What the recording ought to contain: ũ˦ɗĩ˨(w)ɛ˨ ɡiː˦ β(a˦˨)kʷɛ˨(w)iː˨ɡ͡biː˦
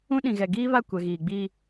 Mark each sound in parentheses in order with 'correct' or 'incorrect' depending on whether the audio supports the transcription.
incorrect: ɣ, correct, incorrect: ɣ

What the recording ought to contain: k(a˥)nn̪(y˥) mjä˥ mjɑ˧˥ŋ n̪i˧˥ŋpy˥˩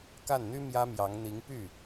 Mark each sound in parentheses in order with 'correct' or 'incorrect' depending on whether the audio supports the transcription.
incorrect: a˥˩, correct

